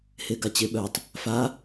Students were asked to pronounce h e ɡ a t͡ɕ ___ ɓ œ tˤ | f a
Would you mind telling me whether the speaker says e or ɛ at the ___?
e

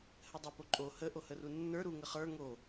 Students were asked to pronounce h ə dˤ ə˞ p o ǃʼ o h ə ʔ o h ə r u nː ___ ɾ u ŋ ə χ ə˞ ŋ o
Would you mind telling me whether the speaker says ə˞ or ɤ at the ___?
ə˞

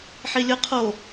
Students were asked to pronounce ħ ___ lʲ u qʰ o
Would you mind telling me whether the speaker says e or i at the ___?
i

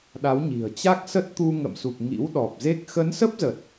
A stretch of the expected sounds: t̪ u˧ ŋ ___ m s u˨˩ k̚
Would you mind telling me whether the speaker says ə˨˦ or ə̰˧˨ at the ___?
ə̰˧˨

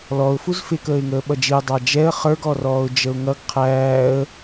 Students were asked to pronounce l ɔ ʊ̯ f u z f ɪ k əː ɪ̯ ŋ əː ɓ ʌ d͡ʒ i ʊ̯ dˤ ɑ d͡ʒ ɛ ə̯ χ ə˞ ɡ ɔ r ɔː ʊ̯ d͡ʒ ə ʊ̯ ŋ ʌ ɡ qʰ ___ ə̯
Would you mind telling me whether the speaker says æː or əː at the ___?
æː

